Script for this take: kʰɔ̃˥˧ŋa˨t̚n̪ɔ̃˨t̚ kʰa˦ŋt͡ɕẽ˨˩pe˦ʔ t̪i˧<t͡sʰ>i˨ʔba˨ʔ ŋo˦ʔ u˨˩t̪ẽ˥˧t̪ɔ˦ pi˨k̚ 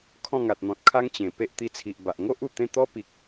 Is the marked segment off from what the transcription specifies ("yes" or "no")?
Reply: no